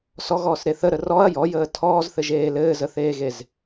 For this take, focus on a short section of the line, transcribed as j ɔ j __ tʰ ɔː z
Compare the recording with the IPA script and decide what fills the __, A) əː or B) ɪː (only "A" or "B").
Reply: A